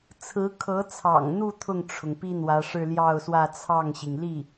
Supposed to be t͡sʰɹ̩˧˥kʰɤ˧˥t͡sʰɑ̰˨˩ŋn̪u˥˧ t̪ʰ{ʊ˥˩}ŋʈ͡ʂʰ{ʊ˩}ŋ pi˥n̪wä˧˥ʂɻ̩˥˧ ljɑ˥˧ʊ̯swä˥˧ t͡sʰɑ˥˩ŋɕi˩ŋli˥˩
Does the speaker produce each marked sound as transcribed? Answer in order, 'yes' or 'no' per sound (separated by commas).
yes, yes